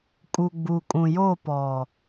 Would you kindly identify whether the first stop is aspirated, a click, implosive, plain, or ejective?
ejective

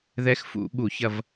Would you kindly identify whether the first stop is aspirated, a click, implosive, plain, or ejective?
implosive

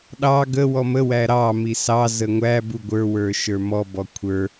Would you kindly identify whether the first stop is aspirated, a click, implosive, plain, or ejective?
implosive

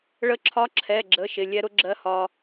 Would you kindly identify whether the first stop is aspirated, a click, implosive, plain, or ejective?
click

